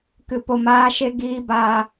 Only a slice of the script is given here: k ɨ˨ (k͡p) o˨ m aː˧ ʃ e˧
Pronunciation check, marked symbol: incorrect: p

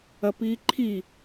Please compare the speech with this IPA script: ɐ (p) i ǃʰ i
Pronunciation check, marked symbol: correct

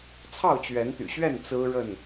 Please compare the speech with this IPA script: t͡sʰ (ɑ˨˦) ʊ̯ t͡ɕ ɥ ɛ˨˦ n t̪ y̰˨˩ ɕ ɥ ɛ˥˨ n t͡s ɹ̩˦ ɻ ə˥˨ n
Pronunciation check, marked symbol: incorrect: ɑ˥˨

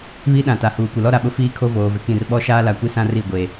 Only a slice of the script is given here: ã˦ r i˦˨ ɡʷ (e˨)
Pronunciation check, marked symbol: correct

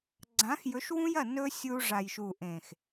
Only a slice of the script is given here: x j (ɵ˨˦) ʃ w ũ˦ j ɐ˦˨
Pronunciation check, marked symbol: correct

